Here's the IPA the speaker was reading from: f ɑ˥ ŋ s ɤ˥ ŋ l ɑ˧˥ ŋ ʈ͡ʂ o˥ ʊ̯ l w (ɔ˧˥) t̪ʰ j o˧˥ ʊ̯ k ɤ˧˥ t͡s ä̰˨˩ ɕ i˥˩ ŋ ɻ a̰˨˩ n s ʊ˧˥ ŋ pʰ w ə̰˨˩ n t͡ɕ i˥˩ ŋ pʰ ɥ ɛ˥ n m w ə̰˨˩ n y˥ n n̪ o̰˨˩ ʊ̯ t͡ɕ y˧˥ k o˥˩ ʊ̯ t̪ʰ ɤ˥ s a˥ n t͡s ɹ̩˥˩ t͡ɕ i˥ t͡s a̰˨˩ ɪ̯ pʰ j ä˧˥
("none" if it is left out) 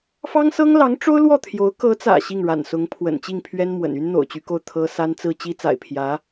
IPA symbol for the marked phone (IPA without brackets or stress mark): ɔ˥˩